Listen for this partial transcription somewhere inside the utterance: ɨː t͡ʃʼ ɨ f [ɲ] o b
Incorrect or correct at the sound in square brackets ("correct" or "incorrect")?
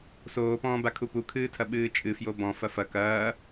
incorrect